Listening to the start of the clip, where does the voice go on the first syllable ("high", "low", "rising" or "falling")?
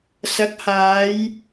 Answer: rising